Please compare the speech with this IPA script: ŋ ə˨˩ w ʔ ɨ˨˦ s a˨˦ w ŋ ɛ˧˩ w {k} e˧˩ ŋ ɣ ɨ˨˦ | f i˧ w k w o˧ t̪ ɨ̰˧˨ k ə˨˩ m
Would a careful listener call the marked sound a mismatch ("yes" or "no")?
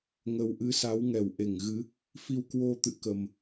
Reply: yes